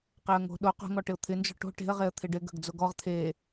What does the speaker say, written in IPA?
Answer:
q e ə̯ ŋ o̤ ɗ o q o̤ ŋ ɔ ʈ ɪ ʊ̯ t̪ʰ ɪ n d͡ʒ ɔ̤ ʈ o̤ ʈ e̤ ə̯ ʁ e ə̯ t̪ʰ ɪ ɖ ɪ ɡ ə̤ ɡ d͡z o ɡ ɔ ʁ t̪ʰ e

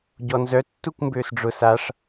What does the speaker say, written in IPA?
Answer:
ɟ ɔ n z œ tː u kʷ m b ø s ɖ͡ʐ ʊ s a ʂ

